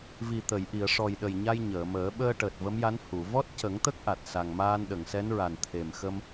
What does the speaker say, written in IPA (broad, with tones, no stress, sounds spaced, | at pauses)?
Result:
v i˨˩ t̪ ə˨˩˨ j ʔ i˨˩˨ ə̯ ʂ ɔ˨˩ j ɗ ə˨˩ j ɲ a˧ j ɲ əː˨˩˨ m əː˨˩˦ ɓ əː˧ ʈ əː˨˩ t̚ v ə˧˥ m j a˧˥ n h u˨˩˨ v ɔ˦˥ t̚ c ə˨˩˦ ŋ t̪ ə˦˥ k̚ ʔ a˨˩ t̚ s a˨˩ ŋ m aː˧ n ɗ ə˨˩˨ ŋ s ɛ˧˥ n ɹ a˨˩ n t̪ʰ e˨˩ m x ə˧ m